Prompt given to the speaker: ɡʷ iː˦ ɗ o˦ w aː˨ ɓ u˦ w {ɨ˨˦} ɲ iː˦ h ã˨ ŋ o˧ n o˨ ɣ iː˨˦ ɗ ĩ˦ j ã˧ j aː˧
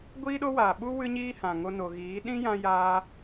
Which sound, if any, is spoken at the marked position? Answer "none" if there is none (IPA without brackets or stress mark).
ɨ˦